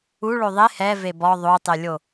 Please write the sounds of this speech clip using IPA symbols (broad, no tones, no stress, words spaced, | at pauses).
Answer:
u ɭoðˤe hɛ vebɔ ðˤotˤelʲo